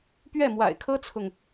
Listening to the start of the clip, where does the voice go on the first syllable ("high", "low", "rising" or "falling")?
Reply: falling